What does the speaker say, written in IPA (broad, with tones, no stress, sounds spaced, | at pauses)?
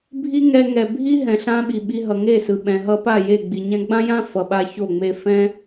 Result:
bʱ i˦ ŋ ɛ˧ ŋ ɛ˨ bʱ i˦ ɦ ɛ̃˨ ɬ ã˦ ɓ i˨ ɓ i˧ ɦ ʌ˨ ŋ e˦˨ s ɯ˨ ɓ ɛ̃˨ ɦ ʌ˧ p a˦˨ j e˦˨ ɡ͡b i˨ ɲ ɛ̃˦ ɡ͡b ã˦ j ã˦ f ʌ˨ ɓ a˧ ç o˦˨ ŋ͡m e˧ f ɛ̃˦